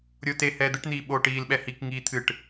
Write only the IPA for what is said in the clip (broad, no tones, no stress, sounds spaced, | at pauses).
ɾʲ oː t e h ɛː d̪ ɨ ʈ n̪ iː ɓ oː ʈ iː l ɓ ɛ h i k ŋ iː t̪ʰ ɨ ʈ